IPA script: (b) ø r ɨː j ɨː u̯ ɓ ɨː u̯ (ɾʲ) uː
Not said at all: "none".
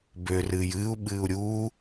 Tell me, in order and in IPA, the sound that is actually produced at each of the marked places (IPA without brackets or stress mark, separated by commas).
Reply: b, ɾʲ